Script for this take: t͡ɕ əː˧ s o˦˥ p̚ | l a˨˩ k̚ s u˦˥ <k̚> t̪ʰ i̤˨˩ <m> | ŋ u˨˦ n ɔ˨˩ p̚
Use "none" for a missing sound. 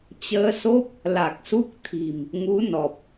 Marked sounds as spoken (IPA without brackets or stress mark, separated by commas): k̚, m